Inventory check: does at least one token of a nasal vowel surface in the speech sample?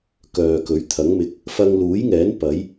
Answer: no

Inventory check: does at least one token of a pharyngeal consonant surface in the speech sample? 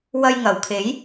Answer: no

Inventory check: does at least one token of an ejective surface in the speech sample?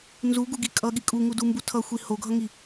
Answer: yes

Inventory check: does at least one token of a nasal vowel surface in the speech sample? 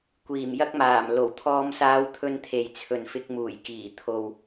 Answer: no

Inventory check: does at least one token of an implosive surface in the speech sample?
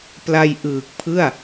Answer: no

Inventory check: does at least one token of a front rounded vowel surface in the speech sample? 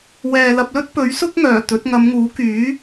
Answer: yes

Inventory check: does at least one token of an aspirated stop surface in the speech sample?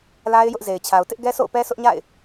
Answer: yes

